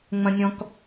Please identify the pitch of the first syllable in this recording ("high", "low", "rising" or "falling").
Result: low